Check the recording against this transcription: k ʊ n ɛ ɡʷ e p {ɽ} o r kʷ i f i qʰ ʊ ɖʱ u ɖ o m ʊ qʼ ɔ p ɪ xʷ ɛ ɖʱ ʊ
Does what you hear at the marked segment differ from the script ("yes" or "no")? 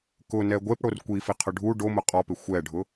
no